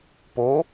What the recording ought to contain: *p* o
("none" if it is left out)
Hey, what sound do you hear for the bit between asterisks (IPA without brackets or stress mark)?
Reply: p